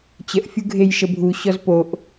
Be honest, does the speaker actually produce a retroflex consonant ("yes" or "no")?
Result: no